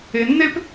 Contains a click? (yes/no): no